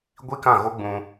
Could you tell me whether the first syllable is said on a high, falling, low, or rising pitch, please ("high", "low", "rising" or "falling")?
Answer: high